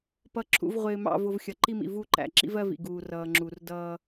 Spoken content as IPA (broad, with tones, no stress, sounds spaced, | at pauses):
p ʌ˨ ǁʰ ṵ˨ v ʁʷ ɪː˨ m ɑ̰˨ v ʊ˨ v xʲ ʌ˨ ǃ i˦ m ḭ˨ v u˦˨ ǃ æ̰˨ ǁ ḭ˦ v ɜ˦ v ḭ˨ ɡ uː˨ r ʌː˨ ŋ͡ǁ u˨ r d ʌː˦